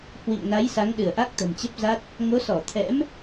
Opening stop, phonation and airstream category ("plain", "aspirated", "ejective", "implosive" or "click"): implosive